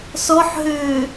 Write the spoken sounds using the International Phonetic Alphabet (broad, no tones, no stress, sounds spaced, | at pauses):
s ɔ ħ ɦ øː